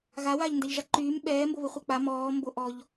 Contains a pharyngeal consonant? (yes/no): no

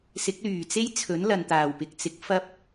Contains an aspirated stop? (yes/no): yes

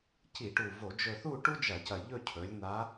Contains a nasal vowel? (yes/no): no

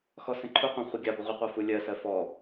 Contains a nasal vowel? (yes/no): yes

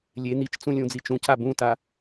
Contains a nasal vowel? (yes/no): yes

